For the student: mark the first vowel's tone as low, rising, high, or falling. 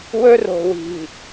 high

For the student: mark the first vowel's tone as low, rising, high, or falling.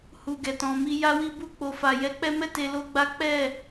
low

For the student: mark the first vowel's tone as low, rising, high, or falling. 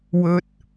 low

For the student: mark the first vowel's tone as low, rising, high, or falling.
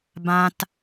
high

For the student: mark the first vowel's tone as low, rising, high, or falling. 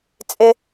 high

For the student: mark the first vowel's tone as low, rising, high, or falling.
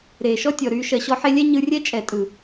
low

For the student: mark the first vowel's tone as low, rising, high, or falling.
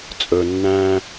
low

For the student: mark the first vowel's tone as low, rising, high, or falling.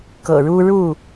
low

